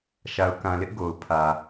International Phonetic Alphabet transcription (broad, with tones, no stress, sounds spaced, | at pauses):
ʃ a˨ ʊ̯ k ã˨ l ɪ˦ ʔ ɡ o˨ ʊ̯ pʰ ä˨